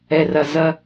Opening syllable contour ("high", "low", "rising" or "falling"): low